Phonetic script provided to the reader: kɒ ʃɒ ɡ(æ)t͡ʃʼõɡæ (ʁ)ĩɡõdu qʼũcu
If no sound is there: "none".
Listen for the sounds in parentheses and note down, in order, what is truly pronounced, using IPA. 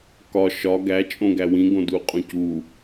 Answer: æ, w

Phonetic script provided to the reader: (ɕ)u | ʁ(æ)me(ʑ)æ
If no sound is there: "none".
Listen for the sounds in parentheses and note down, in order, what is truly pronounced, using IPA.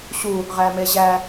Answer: ɕ, æ, ʑ

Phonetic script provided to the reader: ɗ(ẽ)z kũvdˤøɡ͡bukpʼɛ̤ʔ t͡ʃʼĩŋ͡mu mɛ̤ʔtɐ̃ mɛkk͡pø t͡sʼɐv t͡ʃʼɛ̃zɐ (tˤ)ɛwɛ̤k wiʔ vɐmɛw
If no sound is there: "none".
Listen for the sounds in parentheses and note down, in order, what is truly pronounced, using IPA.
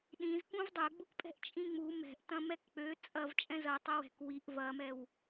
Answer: ĩ, tˤ

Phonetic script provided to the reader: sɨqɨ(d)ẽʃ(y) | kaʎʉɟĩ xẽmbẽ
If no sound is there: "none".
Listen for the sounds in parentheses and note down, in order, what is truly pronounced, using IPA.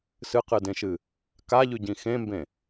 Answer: d, ɨ

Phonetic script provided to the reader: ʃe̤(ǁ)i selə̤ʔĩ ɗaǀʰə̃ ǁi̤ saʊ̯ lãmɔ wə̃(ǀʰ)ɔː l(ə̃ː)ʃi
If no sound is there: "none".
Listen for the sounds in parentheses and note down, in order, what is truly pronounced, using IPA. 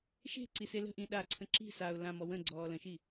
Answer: ǀ, ɡ͡ǀ, ə̃

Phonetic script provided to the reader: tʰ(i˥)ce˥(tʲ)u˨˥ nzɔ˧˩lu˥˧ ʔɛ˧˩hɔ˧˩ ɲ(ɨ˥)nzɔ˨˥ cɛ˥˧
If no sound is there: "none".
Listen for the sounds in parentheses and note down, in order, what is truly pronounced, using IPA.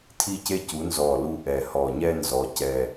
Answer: i˥, c, ɛ˥

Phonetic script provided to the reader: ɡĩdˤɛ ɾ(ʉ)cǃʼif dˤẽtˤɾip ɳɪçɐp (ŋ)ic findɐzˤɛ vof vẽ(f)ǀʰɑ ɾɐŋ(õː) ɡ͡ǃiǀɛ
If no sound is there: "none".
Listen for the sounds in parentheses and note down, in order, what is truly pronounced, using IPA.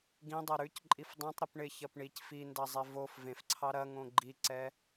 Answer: ʉ, ɳ, f, õ

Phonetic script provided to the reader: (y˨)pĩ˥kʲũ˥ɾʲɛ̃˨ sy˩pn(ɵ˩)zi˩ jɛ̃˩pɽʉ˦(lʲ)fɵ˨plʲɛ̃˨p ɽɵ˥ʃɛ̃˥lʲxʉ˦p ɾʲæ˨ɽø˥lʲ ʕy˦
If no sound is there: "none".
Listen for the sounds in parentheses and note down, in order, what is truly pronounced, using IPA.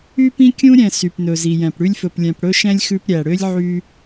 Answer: y˥, ɵ˩, lʲ

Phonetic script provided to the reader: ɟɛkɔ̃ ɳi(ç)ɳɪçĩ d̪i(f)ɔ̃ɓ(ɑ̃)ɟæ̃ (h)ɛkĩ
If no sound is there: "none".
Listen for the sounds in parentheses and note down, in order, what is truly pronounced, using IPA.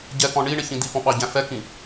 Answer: none, f, ɑ, f

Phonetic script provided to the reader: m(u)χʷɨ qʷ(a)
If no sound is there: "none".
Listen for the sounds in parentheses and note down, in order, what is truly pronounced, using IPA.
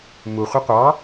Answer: u, ɑ

